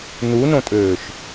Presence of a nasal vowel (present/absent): present